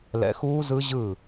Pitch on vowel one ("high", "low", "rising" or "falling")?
rising